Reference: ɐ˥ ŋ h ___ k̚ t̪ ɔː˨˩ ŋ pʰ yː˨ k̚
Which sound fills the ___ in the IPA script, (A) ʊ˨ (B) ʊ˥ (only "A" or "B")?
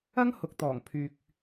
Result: A